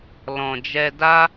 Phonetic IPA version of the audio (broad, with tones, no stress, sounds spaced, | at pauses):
l ɔ̃˨ d͡ʒ ɛ˧ d a˧